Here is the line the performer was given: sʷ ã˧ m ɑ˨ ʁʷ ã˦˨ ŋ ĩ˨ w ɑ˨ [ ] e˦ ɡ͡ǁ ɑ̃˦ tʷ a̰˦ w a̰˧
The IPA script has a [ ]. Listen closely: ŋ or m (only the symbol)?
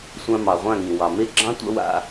m